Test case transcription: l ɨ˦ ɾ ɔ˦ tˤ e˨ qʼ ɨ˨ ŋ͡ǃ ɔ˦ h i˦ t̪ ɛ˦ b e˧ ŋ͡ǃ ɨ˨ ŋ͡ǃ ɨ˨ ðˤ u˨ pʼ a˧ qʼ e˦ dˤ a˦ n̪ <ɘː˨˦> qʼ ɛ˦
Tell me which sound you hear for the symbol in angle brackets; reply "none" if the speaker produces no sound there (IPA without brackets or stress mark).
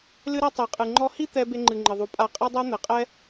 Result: ɘ˨˦